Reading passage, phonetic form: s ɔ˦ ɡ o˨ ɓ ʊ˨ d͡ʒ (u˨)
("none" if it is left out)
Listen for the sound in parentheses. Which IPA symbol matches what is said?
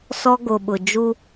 u˦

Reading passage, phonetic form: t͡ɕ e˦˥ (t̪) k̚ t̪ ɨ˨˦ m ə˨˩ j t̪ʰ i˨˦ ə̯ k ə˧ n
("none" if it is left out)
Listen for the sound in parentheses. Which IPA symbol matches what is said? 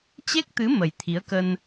none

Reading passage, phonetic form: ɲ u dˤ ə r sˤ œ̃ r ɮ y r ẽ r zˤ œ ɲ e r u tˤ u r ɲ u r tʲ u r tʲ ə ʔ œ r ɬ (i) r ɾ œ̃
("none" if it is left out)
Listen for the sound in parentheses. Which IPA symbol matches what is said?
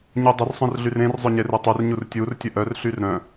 y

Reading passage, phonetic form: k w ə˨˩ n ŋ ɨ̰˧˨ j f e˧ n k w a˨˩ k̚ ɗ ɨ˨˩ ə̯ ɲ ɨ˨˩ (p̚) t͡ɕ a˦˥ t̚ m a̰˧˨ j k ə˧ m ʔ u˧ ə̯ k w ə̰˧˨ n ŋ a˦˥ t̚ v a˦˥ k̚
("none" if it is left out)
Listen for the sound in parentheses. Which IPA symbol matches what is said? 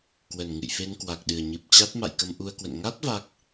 p̚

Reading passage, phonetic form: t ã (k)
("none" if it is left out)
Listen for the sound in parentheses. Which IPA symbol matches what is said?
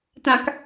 k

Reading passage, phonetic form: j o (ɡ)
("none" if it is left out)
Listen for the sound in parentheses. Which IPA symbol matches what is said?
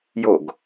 ɡ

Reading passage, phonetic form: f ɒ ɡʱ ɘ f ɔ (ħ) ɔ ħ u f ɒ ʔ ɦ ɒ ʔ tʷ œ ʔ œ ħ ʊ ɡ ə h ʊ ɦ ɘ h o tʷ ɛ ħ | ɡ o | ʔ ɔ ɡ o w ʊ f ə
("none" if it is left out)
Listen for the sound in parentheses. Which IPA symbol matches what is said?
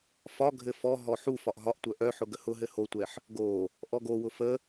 ɦ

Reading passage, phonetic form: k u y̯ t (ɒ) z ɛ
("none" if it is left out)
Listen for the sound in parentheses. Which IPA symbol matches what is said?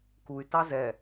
ɑ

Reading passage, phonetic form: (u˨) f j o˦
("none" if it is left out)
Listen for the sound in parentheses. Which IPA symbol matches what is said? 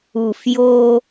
u˨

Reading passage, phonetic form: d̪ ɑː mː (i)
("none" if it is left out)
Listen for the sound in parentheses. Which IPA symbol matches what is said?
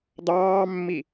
i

